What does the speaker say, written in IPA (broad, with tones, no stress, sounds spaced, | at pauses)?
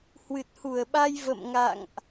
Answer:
h w ɨ˨˩ t̚ h u˧˩ ə̯ ɓ a˧ j v ə̰˧˨ m ŋ a̰˧˨ ŋ ʔ